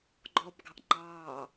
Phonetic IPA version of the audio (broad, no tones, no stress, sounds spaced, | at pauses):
ɡ͡ǃ ɔ b ɡ ɑ̤ ʔ ŋ͡ǃ ɑː